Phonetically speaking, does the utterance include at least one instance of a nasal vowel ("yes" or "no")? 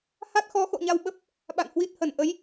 no